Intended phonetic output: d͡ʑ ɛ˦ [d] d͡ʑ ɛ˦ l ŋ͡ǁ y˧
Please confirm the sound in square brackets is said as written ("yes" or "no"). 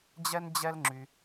no